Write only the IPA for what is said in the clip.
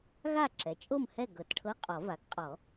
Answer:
ɣa˥˨ǁɛ˩˥ t͡ʃʼo˥˨mhɛ˥˨ ɡɤ˨˩˦tʈʰɤ˧˥˧qʼɔ˨˩˦ va˩˥ɡqʼɔ˨˩˦

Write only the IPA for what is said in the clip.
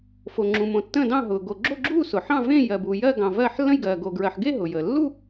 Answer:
fo˨ŋ͡ǁũ˨mõ˨tːə̃ː˥˧ dɑ̃˥˧ɦʊː˨ ɡo˨ɡ͡ǁo˥˧ɡ͡ǁuː˥˧ sʊ˨ħɑ̃˥˧vẽ˥˧ jɜ˨bu˨jɜ˥˧ɡɑ̃˨ vɜ˥˧ħ lːə̃˥˧jɡɜː˨ ɡo˨ɡɹɜ˨ħɡe˥˧ ɦʊ˨jəː˨ lːu˥˧

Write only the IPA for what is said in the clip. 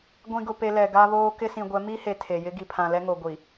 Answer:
ɡʷĩ˨ɡʊ˨pe˨ lɛ˨ɡa˦βoː˦ kɪ˦sĩ˨ɡʷɛ˨˦ mi˦he˨ tʰe˨jɪ˦ ɡi˨pʰã˨lɛ˦ŋo˨ ɡʷi˨

